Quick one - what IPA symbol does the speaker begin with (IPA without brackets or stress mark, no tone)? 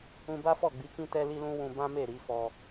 ũ